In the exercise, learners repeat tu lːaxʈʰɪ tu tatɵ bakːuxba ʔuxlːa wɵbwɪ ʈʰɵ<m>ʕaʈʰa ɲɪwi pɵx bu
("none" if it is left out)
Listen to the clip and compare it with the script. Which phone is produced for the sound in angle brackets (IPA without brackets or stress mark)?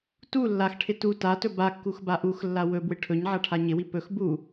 ɲ